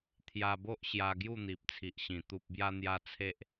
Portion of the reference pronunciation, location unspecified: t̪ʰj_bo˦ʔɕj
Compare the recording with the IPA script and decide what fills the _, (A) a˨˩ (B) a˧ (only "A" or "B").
B